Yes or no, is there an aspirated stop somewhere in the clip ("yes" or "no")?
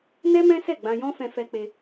no